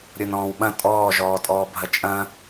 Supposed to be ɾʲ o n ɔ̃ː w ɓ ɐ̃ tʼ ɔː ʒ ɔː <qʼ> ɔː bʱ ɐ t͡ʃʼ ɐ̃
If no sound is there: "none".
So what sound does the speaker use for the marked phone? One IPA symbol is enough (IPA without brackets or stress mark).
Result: tʼ